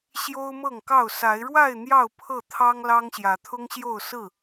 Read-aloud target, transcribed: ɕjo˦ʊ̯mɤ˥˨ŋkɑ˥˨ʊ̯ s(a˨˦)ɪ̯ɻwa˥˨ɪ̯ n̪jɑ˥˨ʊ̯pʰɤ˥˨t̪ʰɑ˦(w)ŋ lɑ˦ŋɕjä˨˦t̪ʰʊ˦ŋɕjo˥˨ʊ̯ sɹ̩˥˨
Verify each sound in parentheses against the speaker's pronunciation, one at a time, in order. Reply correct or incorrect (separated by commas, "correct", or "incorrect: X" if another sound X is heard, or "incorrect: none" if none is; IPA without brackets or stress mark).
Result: correct, incorrect: none